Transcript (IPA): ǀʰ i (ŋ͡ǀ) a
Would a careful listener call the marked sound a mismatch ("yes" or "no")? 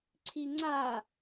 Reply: no